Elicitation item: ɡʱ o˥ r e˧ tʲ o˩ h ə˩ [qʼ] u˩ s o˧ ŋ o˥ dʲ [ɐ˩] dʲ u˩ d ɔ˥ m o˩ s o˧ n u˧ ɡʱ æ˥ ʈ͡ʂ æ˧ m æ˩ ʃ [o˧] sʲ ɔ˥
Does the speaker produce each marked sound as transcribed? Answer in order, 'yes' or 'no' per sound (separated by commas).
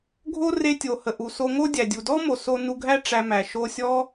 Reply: no, no, yes